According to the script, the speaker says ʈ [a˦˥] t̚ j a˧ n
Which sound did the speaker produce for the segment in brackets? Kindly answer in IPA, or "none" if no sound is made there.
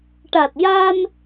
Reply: a˨˩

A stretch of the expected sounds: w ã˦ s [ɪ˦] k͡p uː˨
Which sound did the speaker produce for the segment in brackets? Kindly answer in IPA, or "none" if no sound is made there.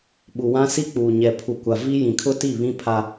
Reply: i˦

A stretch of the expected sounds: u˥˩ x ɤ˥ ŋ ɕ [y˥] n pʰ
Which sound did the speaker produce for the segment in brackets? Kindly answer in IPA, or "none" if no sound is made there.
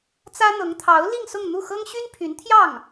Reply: y˥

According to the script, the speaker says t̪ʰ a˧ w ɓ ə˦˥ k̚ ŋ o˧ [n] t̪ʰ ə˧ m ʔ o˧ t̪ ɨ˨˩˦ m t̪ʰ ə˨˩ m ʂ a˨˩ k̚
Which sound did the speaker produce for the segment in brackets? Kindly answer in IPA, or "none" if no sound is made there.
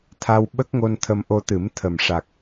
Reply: n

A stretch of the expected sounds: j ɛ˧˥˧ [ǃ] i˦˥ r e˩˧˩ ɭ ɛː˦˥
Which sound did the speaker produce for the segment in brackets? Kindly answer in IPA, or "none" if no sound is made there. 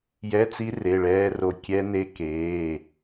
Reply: t͡s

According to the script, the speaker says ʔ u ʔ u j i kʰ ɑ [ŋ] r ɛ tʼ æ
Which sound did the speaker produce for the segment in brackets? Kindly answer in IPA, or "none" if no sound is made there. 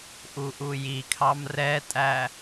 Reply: m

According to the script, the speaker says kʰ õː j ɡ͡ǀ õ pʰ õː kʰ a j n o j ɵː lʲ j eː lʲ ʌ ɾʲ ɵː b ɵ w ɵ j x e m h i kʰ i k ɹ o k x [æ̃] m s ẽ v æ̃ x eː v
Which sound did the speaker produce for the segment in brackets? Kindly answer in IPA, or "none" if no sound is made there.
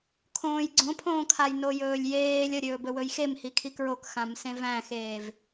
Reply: ã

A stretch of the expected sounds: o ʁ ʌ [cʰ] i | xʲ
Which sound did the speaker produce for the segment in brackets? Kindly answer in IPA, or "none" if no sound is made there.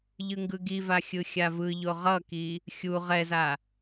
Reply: k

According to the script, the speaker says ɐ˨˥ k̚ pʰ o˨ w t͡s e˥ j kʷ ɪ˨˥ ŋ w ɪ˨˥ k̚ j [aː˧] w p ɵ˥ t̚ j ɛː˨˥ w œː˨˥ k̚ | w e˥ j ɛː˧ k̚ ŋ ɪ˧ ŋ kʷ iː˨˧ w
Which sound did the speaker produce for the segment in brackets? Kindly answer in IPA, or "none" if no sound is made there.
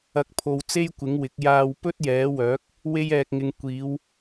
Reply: aː˧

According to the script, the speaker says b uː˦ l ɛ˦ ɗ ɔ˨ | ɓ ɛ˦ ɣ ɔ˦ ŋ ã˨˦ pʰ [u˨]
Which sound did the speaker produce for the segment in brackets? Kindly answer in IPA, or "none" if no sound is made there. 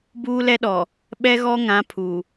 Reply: u˨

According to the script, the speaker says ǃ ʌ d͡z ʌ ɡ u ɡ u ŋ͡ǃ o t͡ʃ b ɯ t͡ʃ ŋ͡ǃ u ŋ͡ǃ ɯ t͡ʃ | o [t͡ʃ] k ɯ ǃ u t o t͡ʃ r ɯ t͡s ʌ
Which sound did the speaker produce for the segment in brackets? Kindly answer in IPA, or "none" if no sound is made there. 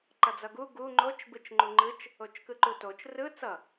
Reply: t͡ʃ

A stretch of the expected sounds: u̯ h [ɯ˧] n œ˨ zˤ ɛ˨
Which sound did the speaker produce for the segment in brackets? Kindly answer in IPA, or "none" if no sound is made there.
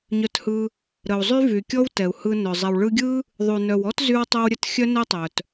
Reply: ɯ˧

